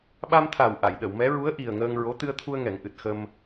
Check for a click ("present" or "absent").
absent